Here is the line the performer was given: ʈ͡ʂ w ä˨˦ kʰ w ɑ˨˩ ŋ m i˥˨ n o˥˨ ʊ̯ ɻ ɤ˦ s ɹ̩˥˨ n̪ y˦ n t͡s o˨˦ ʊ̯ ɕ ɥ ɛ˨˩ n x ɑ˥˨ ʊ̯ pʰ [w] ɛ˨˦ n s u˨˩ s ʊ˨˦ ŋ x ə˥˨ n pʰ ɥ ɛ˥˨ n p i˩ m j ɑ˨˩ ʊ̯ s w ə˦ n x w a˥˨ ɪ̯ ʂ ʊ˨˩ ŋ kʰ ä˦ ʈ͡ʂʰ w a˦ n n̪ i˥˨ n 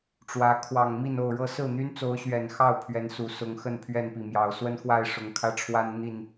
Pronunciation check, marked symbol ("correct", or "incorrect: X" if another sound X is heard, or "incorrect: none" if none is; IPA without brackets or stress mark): incorrect: ɥ